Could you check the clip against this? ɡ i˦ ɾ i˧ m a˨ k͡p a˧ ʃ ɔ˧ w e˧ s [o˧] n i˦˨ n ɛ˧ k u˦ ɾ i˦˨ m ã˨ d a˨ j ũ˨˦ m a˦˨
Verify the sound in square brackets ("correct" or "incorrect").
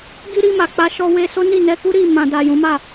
incorrect